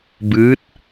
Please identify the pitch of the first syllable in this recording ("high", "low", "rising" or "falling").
rising